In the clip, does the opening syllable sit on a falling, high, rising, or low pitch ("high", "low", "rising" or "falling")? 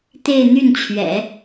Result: falling